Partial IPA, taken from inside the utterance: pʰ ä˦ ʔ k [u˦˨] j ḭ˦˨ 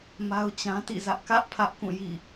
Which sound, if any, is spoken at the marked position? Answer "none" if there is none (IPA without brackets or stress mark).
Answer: ũ˦˨